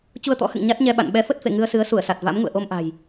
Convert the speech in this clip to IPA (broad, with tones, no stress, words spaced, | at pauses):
t͡ɕu˧ə̯t̪ɔ̰˧˥hɨ̰˧˨ŋ ɲa˦˥t̚ɲɛ˧ɓa̰˧˨n ɓɛ˨˦fə˦˥t̚fḛ˧˨ ŋɨ˧ə̯sɨ˨˦ə̯su˧˩ə̯sa˨˩t̚ va̰˧˥m ŋṵ˧˨ə̯ʔo˧mʔa̤˨˩j